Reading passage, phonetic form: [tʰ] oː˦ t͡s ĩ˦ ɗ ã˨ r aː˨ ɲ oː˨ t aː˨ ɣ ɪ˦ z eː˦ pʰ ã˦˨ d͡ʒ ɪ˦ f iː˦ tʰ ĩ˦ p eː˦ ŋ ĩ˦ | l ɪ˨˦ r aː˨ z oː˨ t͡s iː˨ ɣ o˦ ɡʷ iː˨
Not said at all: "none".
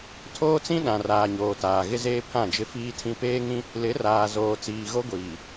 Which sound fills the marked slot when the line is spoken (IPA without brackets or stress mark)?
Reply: tʰ